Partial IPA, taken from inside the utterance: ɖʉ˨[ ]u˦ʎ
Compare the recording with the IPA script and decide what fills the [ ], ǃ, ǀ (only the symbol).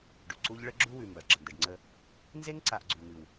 ǀ